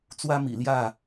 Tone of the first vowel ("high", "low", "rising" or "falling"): high